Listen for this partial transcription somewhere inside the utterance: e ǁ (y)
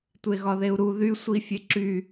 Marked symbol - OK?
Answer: yes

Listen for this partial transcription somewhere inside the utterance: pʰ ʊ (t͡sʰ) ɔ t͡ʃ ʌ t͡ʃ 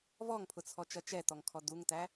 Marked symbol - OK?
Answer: yes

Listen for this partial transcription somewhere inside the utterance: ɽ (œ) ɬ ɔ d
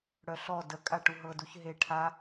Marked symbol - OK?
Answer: yes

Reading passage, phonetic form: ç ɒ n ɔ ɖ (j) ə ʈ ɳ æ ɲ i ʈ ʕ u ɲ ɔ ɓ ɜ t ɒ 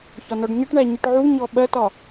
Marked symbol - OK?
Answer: no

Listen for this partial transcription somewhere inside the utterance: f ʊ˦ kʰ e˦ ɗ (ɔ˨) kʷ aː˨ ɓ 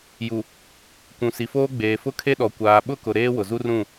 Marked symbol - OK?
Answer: yes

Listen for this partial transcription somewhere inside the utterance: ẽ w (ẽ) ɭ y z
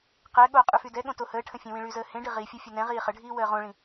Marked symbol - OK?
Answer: no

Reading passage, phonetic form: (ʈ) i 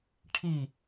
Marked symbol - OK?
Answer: no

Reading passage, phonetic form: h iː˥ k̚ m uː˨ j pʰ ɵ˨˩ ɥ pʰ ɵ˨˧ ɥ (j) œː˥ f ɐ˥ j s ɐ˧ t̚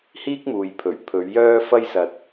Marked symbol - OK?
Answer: yes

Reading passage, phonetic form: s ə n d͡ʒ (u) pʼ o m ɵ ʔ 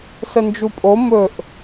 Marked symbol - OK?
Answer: yes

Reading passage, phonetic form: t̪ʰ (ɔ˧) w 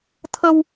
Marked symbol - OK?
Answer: no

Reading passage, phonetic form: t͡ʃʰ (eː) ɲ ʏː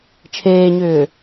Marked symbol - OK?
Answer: yes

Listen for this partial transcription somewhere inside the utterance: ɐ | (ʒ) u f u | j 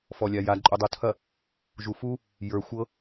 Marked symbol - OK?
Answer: yes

